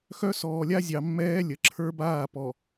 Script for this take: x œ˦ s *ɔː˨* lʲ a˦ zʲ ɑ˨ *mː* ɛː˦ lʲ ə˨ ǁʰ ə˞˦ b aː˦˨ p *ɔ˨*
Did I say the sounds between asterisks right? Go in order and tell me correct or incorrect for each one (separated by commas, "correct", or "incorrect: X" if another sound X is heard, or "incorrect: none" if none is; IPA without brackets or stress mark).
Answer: correct, correct, correct